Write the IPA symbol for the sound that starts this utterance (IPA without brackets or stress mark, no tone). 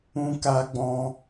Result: ũ